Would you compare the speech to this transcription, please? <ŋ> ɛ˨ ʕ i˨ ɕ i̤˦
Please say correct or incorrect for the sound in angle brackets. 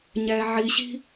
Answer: incorrect